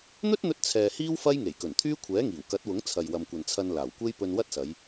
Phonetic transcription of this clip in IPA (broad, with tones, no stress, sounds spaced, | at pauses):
n̪ ɵ˥ t̚ n̪ ɵ˧ t̚ t͡sʰ ɛː˨ h iː˥ w f ɐ˥ j ŋ e˨˩ j k ɵ˨˩ n t̪ʰ yː˥ kʷʰ ɛː˨˥ ŋ iː˨˩ w k ɐ˨˥ t̚ w ʊ˨˥ ŋ t͡sʰ ɐ˨ j w ɐ˨ m kʷ ɐ˨ n t͡sʰ ɐ˧ n l aː˨˩ w kʷ e˥ j p ɵ˧ n w ɐ˥ t̚ s ɐ˨˧ j